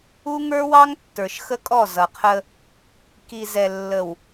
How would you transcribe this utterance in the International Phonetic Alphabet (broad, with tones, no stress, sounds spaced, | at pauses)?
u˦ ŋ ə˞˦ w ɑ˦ ŋ tː ə˞˨ ʃ x ə˦ kʼ ɔ˦˨ z ʌ˨ qʰ ə˦ | k i˨ z ɛ˨ lː ə˨ w